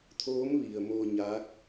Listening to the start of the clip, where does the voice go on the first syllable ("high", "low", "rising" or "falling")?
rising